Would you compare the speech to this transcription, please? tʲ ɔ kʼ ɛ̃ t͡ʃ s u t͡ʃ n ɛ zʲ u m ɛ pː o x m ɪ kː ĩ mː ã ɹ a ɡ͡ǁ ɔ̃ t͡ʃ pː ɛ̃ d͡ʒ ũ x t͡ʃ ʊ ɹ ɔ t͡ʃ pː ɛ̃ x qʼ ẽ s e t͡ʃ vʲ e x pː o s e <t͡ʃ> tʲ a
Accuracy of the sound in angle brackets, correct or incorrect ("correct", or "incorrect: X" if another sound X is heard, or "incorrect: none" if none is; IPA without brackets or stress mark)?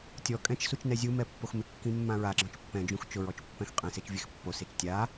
correct